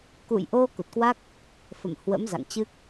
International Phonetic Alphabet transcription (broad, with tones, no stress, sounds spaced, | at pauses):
k ṵ˧˨ j ʔ o˧ k u˨˩ t̚ k w a˦˥ k̚ | f ə̰˧˨ m h w ə̰˧˥ m z a̰˧˨ ŋ t͡ɕ ɨ˦˥ k̚